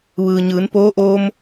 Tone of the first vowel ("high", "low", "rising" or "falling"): low